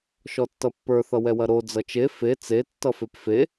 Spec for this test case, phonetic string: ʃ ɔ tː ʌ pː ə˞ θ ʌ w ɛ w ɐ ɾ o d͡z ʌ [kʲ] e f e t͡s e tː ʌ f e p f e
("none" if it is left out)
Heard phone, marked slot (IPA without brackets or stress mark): t͡ʃ